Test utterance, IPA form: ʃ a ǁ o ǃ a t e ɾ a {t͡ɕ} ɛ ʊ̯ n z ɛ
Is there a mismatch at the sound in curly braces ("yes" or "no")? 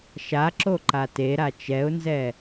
yes